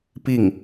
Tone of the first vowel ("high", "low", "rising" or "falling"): falling